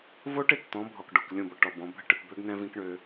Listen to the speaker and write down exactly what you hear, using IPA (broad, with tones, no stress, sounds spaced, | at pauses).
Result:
v o˦ ʈ ɪ˨ t t̪ ɔ̃˨˦ bʱ ɔ˨ k ɖ o˨ k lʲ õ˦˨ b ɔ˨ ʈ ɔ˨ b ɔ̃˨˦ bʱ ə˦ ʈ ɪ˨ p b ø˦ ɡ n ɛ̃˦ v ĩ˦ k ɳ ø˦